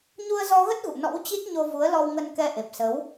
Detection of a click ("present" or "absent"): absent